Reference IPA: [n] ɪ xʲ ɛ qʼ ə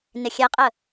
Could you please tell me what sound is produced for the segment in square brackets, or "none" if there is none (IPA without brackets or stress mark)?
n